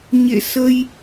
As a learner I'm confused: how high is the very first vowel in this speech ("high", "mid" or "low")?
mid